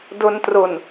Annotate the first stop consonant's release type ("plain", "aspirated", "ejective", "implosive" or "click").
plain